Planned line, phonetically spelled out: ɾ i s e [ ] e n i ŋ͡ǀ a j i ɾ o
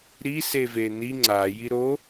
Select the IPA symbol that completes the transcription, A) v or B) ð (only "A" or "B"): A